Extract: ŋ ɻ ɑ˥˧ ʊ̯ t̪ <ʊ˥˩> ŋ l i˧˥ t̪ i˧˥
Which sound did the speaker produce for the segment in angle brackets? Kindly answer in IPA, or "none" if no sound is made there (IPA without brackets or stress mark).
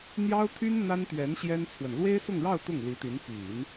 ʊ˥˩